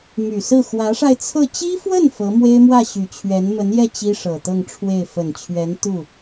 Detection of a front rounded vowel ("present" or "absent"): present